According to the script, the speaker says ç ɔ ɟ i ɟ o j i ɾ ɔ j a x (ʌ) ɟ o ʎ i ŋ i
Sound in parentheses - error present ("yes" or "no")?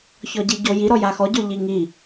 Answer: yes